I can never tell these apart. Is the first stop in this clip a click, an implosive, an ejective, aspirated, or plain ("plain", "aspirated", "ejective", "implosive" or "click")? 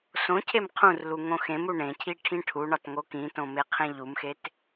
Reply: aspirated